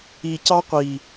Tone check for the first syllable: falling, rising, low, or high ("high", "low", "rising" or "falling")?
low